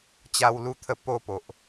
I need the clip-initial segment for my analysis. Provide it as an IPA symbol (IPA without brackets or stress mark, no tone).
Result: t͡ɕ